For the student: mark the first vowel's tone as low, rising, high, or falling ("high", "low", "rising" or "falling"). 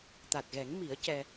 low